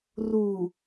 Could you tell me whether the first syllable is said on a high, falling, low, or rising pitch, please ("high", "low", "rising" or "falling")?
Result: low